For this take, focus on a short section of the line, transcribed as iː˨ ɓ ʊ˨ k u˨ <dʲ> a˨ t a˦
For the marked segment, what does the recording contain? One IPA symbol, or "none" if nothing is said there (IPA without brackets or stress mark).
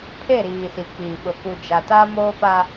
d͡ʒ